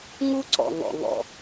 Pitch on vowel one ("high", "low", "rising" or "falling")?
high